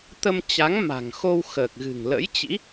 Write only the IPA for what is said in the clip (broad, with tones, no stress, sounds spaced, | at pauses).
t̪ ə˧ m t͡ɕ a˨˦ ŋ m a̤˨˩ ŋ x o˧ w x əː˨˩ k̚ ɣ ɨ̤˨˩ ŋ l ə̰˧˥ j t͡ɕ ḭ˧˥